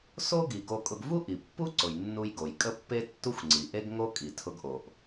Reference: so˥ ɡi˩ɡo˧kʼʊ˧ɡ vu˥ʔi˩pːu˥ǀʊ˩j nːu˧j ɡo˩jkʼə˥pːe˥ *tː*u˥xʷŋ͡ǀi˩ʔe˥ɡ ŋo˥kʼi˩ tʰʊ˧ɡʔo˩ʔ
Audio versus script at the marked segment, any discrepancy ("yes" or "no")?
no